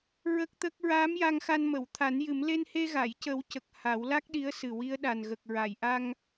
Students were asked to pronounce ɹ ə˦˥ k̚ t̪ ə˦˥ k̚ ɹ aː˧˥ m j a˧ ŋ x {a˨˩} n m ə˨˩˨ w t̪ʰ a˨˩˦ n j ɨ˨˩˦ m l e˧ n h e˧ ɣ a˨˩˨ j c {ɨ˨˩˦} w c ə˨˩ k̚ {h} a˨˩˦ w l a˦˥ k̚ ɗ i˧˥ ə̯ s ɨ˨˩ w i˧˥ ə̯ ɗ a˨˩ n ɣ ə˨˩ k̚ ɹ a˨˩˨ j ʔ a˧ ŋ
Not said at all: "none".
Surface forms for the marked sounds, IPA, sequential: a˧, ə˨˩˦, h

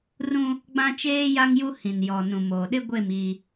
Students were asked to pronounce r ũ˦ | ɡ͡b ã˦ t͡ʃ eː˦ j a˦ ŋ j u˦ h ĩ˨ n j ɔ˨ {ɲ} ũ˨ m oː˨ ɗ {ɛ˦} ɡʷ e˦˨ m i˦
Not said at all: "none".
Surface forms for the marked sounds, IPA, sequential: n, ɪ˦

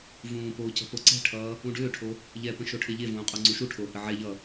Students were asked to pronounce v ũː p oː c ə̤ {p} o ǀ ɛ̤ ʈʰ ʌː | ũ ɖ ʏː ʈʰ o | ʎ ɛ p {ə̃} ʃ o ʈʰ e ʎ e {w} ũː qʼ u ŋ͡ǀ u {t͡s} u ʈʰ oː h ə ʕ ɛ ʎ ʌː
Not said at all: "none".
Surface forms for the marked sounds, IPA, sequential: p, ə̃, v, ʃ

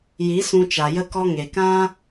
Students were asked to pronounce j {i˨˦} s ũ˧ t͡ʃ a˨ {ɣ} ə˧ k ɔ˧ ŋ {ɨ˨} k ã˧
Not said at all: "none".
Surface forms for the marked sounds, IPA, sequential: i˨˦, j, e˨

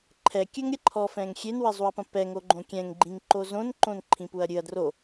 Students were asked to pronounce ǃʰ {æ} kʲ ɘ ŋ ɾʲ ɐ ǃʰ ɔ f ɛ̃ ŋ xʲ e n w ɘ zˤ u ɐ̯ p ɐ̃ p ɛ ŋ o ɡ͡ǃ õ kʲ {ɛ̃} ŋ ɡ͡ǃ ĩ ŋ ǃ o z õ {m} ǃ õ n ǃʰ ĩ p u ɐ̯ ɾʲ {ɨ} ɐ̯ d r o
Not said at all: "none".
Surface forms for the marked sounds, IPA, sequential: ɛ, ɛ̃, n, ɨ

